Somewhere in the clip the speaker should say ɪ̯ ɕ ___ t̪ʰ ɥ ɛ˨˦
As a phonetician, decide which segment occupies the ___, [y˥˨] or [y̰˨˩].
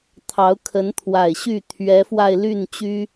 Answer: y˥˨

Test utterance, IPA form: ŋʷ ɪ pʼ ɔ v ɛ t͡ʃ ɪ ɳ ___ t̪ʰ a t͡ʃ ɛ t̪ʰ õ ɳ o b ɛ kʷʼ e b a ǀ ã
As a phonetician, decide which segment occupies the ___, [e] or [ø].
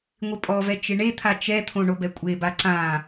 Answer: e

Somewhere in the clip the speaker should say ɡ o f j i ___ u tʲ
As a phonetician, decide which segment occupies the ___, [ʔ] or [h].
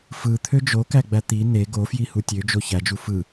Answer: h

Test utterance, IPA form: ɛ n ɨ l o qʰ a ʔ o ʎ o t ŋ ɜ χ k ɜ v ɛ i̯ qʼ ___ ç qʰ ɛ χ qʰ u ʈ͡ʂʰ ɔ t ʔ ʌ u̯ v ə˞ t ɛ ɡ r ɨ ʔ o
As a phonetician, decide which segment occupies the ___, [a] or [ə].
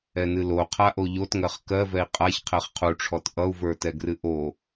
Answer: a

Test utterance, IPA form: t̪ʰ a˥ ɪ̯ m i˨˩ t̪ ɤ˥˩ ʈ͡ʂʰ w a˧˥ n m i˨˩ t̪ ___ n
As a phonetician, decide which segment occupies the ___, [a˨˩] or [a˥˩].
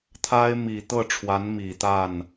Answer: a˥˩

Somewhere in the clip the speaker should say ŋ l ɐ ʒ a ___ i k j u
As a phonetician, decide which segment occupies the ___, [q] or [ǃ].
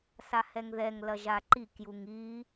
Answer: ǃ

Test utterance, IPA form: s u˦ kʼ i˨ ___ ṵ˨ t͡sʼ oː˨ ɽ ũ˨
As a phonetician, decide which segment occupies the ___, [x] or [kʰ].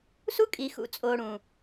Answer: x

